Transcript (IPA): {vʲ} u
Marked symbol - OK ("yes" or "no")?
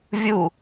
yes